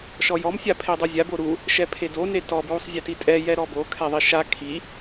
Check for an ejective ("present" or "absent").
present